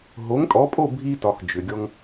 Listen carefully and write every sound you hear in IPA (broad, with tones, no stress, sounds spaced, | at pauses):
ɦ o˩˥ ŋ tʼ ɔ˩˥ pʼ o˥˩ bʱ i˧ t ɒ˩ x d͡ʒ ʏ˩ ɡʲ ɔ˧ ŋ